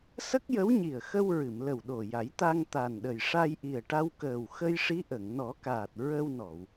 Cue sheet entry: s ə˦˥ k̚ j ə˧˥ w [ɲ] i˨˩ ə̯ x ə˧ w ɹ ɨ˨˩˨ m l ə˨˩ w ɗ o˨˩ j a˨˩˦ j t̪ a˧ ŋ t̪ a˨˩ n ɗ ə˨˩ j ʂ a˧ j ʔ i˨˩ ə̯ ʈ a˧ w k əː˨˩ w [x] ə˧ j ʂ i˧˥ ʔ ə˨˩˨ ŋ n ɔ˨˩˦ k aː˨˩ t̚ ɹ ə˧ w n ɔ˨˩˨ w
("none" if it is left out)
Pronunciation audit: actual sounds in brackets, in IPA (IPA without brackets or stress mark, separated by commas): ɲ, x